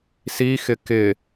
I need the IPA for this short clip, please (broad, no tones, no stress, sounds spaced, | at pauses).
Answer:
s i x ɪ k ɪ